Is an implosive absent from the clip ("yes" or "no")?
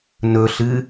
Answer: yes